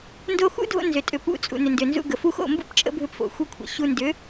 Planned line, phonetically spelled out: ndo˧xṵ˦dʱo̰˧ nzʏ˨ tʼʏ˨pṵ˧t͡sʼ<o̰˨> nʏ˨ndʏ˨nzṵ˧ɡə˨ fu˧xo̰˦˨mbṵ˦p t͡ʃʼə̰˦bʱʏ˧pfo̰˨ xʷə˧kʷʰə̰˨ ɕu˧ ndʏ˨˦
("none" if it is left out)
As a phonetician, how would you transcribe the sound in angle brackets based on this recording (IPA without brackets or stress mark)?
ṵ˨